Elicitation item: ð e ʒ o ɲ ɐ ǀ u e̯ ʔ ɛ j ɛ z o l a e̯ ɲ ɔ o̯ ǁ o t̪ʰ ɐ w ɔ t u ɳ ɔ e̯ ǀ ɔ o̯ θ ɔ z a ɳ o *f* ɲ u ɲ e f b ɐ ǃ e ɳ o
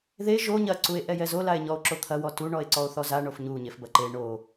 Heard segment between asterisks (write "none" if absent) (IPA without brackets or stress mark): f